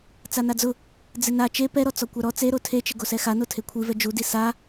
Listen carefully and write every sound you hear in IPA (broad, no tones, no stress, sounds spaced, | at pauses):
t͡s a n a d͡z ʊ | d͡z ɪ n a t͡ʃ e p ɛ ɾ ɔ t͡s ɔ kʷ a ɾ ɔ t͡s e ɾ o tʰ e t͡ʃ ɪ ɡ o s ɛ x a n o tʰ e kʷʰ i v ɛ d͡ʒ u d i s a